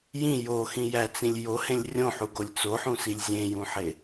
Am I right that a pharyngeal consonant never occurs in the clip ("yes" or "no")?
no